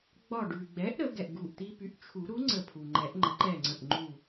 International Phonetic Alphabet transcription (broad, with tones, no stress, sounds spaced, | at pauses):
ɡ͡b ɒ˧˩ ɖ ʉ˩ ɡ͡b ɛ˩˥ ʔ ɾ ə˨˩˦ ɡ ɛ˩ ʔ ɡ u˧˩ ʔ t̪ i˦ p y˩˥ ʔ t͡ʃʰ u˨˩˦ ɾ u˩˥ ŋ͡ǀ ə˧˩ pʰ u˩ ŋ͡ǃ ɛ˨˩˦ ʔ ŋ͡ǃ ə˩˥ ǃ ɛ˧˩ ŋ͡ǀ ə̃˧˩ ʔ ŋ͡ǃ u˧˩